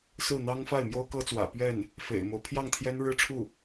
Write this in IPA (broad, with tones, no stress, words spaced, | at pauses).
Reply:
sɹ̩˥˩n̪ɑ˥ŋ fa˥˩ɪ̯mjo˥ʊ̯kɤ˥t͡swä̰˨˩ pɥɛ˥˩n | fḛ˨˩ɪ̯mo˦ʊ̯ pʰjɑ˥˩ŋt̪ʰjɛ˥nɻɻ̩˥ʈ͡ʂʰu˥˩